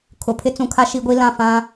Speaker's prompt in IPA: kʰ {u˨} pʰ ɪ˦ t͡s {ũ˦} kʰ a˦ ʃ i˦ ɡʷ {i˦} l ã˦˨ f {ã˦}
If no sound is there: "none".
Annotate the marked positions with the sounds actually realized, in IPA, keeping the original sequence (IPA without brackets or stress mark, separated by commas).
ʊ˨, ũ˨, i˦, ã˦